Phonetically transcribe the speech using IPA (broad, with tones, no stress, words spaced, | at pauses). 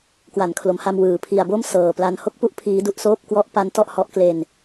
kwa˩˦nkʰlo˩˦mha˧mwɯː˩˦ pʰi˨˩a̯bo˥˩m sɤː˨˩pla˦˥n ho˥˩k̚pu˦˥ʔ pʰiː˦˥ du˥˩ʔsoː˥˩p̚ kwɔ˦˥ʔpa˦˥n tɔ˥˩ʔhɔ˦˥ʔkle˧n